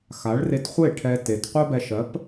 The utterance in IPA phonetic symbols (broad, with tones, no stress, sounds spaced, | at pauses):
x a˩˥ ɭ r e˧ t χʷ e˥˩ ʈʰ ɛ˧ t e˩ t qʷ œ˥ b ɛ˧ ʃ ɜ˩˥ p